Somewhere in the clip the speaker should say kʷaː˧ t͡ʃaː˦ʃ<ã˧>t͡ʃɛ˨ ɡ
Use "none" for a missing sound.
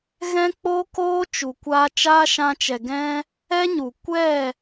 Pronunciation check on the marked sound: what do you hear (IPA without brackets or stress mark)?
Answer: ã˧